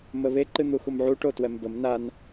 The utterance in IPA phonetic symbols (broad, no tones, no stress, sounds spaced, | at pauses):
m ə β e ǃ ɨ n̪ u x u m ʕ u ʈ o t w ɛ m b ə m n a n